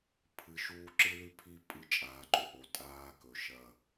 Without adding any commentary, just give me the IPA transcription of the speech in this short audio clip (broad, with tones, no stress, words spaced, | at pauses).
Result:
pʰɨ˨ʃuː˦ ǁɨ˦lʉ˦pʰi˦ pʼɨ˦˨t͡ʃʼaː˨ǃɵ˨ ʔo˨tʼaː˦kɵ˨ ʃɐ˦˨